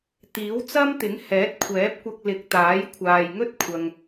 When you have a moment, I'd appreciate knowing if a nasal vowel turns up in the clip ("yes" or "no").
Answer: no